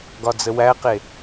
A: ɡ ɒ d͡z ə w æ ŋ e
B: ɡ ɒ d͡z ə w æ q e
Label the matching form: B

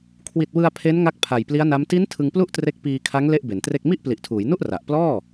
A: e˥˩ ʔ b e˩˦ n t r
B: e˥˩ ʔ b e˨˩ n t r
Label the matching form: A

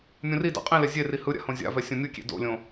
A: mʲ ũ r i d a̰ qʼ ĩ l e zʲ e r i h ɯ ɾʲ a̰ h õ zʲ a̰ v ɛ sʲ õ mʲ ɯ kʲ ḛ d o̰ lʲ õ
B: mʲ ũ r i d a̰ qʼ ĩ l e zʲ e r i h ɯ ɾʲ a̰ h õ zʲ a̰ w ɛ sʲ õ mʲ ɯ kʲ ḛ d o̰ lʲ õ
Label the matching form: A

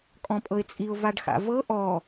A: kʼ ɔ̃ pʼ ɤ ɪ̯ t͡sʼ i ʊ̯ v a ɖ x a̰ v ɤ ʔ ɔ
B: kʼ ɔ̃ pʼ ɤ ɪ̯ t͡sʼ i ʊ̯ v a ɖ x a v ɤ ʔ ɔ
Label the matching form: A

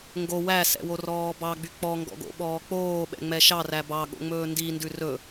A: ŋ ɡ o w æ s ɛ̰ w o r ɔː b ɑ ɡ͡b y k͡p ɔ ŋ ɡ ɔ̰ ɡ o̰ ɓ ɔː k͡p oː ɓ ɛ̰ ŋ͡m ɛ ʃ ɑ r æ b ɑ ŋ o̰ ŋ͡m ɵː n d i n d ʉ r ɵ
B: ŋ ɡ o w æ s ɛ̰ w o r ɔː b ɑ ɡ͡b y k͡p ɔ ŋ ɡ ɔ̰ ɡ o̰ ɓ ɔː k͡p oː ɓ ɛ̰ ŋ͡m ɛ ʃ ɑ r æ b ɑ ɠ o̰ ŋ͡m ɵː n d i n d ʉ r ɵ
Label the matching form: B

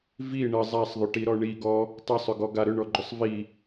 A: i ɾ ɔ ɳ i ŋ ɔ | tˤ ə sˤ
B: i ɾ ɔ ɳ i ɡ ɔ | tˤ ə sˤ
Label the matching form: B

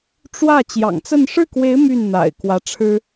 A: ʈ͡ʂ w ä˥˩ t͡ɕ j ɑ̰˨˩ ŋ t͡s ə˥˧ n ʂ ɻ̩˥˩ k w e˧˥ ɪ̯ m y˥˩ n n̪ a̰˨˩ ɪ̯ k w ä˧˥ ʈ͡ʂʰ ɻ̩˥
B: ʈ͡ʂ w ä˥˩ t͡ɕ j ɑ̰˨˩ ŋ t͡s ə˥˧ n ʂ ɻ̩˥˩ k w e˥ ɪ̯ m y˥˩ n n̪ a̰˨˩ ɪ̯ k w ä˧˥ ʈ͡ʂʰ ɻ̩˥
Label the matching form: A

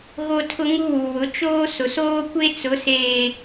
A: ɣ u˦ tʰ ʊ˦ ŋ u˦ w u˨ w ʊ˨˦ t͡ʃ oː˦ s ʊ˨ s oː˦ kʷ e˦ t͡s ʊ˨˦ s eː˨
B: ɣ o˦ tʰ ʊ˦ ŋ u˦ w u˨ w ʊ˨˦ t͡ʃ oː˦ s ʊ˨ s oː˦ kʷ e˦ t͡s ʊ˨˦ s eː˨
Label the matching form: B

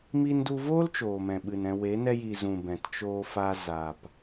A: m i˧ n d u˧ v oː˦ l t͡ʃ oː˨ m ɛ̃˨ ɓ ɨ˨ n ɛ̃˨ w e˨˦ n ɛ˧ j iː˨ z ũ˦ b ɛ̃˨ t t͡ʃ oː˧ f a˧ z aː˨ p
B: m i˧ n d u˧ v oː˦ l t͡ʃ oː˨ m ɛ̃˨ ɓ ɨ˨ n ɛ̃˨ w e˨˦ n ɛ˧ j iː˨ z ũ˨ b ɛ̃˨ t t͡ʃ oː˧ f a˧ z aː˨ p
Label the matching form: B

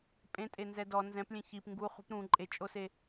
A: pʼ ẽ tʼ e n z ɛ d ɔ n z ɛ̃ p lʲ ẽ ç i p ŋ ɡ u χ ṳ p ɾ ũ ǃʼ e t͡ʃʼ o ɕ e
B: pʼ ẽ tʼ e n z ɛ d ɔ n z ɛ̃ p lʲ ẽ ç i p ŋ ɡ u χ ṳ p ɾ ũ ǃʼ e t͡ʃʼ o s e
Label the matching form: B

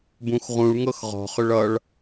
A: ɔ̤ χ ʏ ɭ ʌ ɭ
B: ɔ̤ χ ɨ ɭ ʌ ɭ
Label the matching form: A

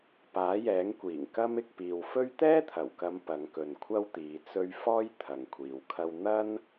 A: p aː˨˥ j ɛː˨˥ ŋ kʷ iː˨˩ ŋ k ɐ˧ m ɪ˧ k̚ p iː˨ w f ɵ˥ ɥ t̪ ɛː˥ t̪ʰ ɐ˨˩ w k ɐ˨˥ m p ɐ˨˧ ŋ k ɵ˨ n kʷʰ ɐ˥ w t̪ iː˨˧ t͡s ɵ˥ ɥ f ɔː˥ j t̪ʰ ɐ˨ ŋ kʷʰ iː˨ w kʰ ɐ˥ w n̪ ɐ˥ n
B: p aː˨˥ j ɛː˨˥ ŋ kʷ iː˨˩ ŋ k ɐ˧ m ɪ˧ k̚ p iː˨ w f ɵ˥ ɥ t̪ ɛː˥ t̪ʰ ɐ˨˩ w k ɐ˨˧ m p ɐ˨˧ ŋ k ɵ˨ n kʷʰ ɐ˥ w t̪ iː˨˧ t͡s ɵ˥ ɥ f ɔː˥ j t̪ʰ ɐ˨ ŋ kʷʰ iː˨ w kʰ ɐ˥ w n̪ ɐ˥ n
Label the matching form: B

